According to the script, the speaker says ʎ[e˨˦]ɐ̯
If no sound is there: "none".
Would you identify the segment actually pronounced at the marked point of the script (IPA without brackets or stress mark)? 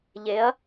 e˨˦